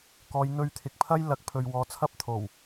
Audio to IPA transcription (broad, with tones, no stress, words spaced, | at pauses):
kɔː˨˧jn̪ɵ˧ɥ t̪ʰɪ˨k̚pʰɐ˥j lɐ˨˥k̚pʰɵ˨ɥ wɔː˨˧t͡sʰɐ˥p̚t̪ʰo˨˩w